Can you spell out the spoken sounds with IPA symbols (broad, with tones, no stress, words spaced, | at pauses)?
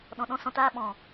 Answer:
ɗɔ̃˧ ɗɔ̃˦sɔ̃˧taː˦ɓɔ̃˨